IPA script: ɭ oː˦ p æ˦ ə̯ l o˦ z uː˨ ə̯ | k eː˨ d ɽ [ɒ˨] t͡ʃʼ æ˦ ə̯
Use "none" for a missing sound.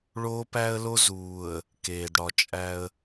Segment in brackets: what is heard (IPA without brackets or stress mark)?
ɒ˨